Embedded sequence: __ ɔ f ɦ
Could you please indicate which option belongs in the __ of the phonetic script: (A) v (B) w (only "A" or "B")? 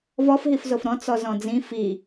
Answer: A